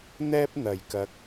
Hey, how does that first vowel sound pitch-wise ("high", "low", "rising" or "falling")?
high